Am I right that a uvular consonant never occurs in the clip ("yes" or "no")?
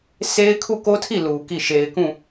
yes